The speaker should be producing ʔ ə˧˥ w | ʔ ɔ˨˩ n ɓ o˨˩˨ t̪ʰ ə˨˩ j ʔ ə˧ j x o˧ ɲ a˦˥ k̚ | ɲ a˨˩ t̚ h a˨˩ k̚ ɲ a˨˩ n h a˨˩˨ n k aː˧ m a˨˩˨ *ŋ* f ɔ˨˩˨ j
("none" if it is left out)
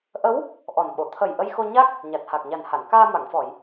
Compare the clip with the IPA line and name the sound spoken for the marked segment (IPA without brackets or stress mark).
ŋ